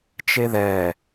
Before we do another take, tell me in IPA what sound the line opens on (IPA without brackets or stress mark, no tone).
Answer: t͡ʃ